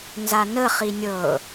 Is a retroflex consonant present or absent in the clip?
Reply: absent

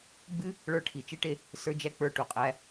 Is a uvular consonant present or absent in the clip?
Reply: present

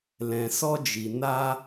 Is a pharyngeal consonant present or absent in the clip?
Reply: absent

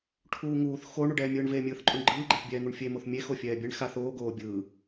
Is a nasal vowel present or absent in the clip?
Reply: absent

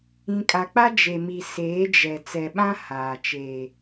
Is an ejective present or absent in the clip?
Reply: present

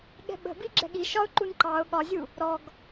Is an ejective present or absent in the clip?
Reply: absent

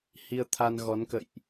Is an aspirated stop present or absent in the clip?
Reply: present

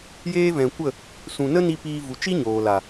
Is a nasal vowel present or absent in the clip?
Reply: present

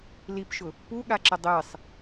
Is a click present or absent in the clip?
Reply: present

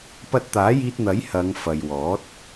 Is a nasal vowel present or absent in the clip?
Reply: absent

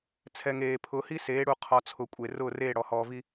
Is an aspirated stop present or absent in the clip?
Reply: present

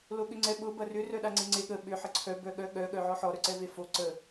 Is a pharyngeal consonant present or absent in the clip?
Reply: present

